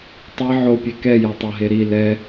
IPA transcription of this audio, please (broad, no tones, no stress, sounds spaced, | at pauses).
tˤ e ʕ o pʲ e k ɛ j a tˤ a ɦ e ɾ i l ɛ